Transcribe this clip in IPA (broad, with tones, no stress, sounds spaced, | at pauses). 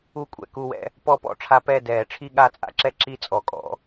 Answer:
u˥˨ kʷʼ ɛ̰˥˨ k u˥˨ w ɛ̰˧˥ | p ɔ˥˨ p ɔ̰˧˥ ʈ͡ʂʰ a˧˥ p ɛ˥˨ d ɛː˨˩˦ ʈ͡ʂʰ i˥˨ ɠ a˥˨ t͡sʼ a̰˧˥ ǁ ɛ˥˨ ǁ i˥˨ t͡sʼ ɔ˨˩˦ kʼ ɔ̰˨˩˦